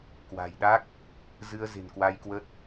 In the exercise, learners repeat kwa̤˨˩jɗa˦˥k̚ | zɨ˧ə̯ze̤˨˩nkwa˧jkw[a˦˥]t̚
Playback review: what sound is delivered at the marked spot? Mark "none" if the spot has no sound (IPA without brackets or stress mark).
ə˦˥